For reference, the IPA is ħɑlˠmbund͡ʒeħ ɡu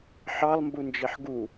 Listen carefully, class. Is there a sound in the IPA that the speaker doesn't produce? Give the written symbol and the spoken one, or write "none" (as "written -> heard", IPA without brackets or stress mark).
none